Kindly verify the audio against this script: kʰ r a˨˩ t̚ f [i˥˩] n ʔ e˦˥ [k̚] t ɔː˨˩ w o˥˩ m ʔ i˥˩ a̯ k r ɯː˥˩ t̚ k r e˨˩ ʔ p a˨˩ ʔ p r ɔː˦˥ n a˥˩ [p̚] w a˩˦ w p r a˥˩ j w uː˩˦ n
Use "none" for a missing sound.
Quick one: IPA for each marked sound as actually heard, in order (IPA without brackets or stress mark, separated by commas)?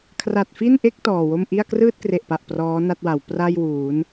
i˥˩, k̚, t̚